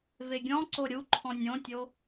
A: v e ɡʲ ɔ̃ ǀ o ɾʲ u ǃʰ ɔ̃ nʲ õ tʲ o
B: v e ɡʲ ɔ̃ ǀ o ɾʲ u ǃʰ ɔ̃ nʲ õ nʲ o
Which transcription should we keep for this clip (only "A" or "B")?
A